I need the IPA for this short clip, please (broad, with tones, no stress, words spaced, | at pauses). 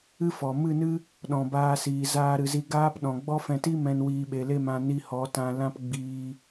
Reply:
ɨ˦fɔ˨ mɨ˦˨nɨ˦ | ɗɔ̃˨baː˧siː˨ zaː˦ɾɨ˧zi˦ ɡaː˦pɗɔ̃˨ ɡ͡bɔ˦fɛ̃˧ti˦mɛ̃˧n wiː˧ ɓe˨le˦˨m ã˧ ni˧hɔ˨˦ tã˧ lã˦pɡ͡biː˧